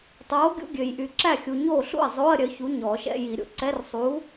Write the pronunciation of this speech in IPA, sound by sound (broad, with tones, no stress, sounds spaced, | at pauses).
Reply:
tˤ oː˨˥ ɡʲ ṵ˧˥˧ ɡʲ ø˨ j ʔ y˨ ǁ æ˥˩ xʲ u˨ ɲ oː˥˩ ɬ ṵ˥˩ ɐ̯ zˤ oː˧˥˧ ɐ̯ ɾʲ œ˨˥ ç u˨˥ ɲ ɔː˨˩˦ ʃ ɛ̰˧˥˧ j i˨˩˦ ɾʲ o̰˨ ǀ ɛ˧˥˧ r sˤ uː˨˥